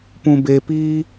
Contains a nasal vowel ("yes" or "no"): yes